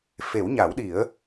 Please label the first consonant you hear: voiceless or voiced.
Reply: voiceless